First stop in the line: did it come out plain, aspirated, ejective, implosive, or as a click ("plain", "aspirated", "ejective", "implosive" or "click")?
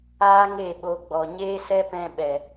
implosive